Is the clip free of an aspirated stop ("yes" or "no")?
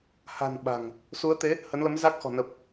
yes